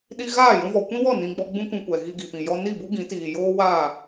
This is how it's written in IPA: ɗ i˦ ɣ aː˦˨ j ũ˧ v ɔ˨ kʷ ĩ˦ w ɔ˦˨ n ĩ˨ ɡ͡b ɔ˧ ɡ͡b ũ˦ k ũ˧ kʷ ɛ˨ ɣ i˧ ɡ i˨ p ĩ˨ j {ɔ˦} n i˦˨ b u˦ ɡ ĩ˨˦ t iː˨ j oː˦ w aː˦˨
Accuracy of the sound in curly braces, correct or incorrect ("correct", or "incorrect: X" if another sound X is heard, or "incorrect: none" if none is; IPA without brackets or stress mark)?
correct